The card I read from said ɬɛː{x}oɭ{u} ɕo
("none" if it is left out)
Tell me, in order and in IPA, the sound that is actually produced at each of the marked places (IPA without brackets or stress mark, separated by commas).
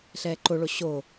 ǃ, o